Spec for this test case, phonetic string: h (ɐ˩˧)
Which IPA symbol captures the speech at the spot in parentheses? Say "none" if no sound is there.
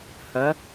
ɐ˩˧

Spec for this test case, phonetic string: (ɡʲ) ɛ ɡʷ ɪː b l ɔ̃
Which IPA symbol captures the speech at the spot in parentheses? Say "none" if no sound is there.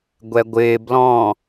ɡʷ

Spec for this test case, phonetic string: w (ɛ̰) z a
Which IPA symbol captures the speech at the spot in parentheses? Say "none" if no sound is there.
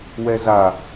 ɛ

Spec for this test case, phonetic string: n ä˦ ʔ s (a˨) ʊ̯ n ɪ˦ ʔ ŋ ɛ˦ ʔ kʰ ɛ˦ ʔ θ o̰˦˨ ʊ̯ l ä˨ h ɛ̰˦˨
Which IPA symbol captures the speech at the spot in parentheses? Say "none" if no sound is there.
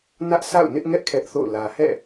a̰˦˨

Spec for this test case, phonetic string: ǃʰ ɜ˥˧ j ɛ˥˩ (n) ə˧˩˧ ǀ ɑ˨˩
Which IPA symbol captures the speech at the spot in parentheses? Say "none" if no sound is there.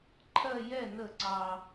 n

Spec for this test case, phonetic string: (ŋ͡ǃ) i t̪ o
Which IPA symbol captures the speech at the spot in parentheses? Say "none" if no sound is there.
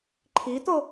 ǃʰ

